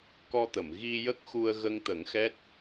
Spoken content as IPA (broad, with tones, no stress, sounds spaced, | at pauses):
k ɔ˧ t̪ ə˨˩˨ m ɣ i˧ j ə˦˥ k̚ x u˧ ə̯ ɣ ə˧ ŋ t̪ ə˨˩˦ ŋ x ɛ˦˥ t̚